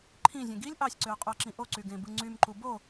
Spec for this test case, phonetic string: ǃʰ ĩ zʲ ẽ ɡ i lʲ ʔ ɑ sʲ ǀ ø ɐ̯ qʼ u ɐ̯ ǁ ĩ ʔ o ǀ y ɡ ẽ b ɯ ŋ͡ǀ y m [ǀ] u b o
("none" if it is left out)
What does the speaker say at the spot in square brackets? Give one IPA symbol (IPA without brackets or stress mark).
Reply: ǃ